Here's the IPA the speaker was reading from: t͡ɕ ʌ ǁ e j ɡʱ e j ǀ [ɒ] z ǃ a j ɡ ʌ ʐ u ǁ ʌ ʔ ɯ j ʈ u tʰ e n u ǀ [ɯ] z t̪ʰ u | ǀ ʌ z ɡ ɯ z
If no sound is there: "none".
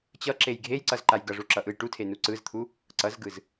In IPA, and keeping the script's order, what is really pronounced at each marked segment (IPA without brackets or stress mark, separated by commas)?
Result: ʌ, ɯ